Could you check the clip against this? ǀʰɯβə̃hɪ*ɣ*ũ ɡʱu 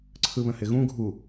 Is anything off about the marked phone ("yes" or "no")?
no